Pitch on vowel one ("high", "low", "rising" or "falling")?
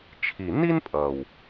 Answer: low